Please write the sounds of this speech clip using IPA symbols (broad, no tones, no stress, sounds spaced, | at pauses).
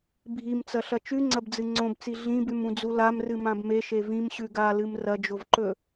bʱ i m t͡s ɐ ɬ ɐ t͡ʃ ʉ ŋ͡ǀ ɐ b d͡z ɨ ŋ͡ǀ õ b t͡s i ɮ ĩ b ʉ m ũ d͡z u l a m r ɨ m ã b m e ʃ e v ĩ m ɕ ʉ ɡ a l ɨ m r ɐ d͡ʒ o v ǃ ɵ